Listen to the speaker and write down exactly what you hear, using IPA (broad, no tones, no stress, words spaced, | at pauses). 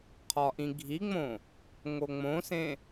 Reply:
qʰɒʔĩɡʱiŋ͡mõ | ŋoŋ͡mõsẽ